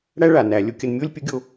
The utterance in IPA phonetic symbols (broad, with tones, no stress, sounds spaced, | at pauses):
ɽ æ˥ ɭ a˩ n æ˩˧ lʲ o˧ kʲ ə˧ n mʲ o˥ lʲ pʲ ə˧˥ ɡʲ o˧